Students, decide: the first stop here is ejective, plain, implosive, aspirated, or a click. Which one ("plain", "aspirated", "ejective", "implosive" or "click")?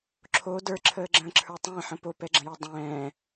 click